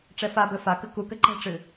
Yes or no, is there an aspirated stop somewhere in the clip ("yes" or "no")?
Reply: no